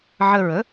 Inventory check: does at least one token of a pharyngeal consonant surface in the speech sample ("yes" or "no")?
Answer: yes